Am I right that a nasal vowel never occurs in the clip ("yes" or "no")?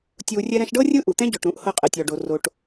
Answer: no